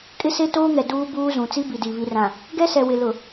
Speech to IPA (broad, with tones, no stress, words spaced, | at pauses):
kʼɪ˦se˦toː˦ŋɛ˨ duː˦buː˦zũ˨ t͡si˦bi˨di˨ βi˨rã˨ | ɡɛ˦sɛ˨wɪ˨ lʊ˨